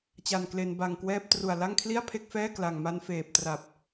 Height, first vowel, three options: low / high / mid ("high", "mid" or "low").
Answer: low